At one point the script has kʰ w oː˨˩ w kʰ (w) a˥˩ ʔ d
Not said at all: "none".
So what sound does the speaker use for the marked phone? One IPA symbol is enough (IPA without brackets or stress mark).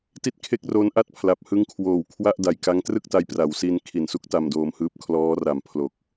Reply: w